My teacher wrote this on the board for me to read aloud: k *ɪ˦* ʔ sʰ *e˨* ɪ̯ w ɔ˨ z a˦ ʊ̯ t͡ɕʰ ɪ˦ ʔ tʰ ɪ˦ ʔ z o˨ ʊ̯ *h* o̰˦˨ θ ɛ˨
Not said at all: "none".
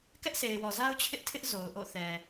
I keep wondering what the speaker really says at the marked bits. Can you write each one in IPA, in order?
ɛ˦, e˨, ʔ

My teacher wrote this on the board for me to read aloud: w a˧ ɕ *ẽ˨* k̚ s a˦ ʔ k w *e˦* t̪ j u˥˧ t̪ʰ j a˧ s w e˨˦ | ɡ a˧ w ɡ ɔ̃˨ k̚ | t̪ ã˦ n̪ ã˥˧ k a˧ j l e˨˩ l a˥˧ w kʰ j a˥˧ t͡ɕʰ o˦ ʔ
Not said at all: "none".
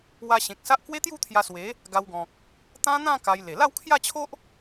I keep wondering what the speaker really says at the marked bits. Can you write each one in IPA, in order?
ẽ˨, e˦

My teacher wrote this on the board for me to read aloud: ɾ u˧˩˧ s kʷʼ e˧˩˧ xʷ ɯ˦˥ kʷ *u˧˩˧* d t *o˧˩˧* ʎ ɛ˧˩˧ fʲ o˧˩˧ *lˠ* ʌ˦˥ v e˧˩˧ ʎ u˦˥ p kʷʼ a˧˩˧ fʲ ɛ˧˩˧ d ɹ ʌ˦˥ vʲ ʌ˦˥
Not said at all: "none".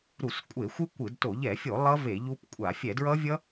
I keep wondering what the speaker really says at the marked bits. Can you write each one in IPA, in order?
ɯ˧˩˧, o˧˩˧, lˠ

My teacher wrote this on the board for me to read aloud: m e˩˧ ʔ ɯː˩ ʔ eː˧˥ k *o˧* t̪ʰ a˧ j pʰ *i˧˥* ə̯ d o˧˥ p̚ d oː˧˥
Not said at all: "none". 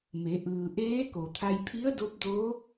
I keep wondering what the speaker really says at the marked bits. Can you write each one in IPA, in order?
o˩, i˧˥

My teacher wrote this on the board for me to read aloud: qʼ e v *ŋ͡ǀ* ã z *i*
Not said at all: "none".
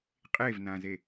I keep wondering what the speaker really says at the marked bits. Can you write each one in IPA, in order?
n, e

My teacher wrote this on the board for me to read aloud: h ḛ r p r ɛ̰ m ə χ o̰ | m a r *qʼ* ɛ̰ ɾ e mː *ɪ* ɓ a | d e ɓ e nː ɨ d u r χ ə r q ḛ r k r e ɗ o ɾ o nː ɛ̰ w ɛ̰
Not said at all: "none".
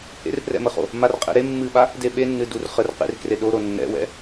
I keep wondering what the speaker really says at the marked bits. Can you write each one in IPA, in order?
qʼ, ɨ

